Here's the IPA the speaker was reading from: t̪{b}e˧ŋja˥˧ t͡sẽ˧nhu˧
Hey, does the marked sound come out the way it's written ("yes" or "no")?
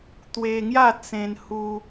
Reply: no